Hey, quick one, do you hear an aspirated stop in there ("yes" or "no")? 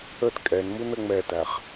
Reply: no